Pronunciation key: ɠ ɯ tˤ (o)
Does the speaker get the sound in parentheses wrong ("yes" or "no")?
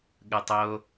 no